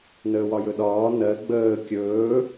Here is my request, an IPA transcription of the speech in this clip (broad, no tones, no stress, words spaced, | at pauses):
nəːwɒjɵɗɒː nɜ ɡ͡bəː kʲɵː